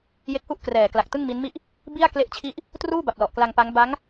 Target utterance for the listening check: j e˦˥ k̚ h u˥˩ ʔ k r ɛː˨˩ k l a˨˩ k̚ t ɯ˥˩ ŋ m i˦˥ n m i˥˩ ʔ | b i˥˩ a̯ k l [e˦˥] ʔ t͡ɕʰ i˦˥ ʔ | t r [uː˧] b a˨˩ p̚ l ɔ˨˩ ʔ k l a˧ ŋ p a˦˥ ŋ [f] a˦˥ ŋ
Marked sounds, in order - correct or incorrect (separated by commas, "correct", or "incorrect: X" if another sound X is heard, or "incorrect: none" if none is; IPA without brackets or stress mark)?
correct, incorrect: uː˥˩, incorrect: b